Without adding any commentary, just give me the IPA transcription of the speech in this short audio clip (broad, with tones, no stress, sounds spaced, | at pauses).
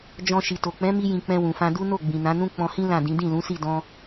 d͡ʒ ɔ̃˧ ʃ i˨ t o˨ k͡p ɛ̃˨˦ m i˧ j ĩ˨ k͡p ɛ̃˧ w ũ˨ f ã˧ d u˦ n o˦˨ ɡ͡b ĩ˨ n ã˨˦ n ũ˦ k͡p ɔ̃˧ h ĩ˦ l ã˦˨ d ĩ˨˦ d ĩ˦˨ l ũ˨˦ s i˦˨ d ɔ̃˧